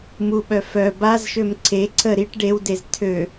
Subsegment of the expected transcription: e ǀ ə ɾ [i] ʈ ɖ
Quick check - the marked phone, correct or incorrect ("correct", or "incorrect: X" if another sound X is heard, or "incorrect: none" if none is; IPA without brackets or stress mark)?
correct